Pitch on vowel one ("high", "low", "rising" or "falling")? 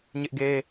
high